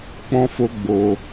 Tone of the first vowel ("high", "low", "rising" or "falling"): high